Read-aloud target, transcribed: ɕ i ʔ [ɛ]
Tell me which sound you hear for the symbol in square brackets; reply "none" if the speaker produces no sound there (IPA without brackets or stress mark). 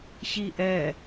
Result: ɛ